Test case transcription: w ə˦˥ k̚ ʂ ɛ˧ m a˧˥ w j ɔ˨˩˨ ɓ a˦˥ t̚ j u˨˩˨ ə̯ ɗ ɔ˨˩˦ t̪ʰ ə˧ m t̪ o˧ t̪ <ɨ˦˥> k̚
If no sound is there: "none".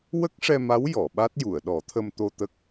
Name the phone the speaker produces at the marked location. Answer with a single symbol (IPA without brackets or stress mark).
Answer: ə˦˥